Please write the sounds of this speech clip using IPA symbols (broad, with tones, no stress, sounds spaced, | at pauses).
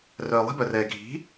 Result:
r œː˨ lˠ i̤˦ b œ˨ r ɛː˨ ɡʱ i̤˨˦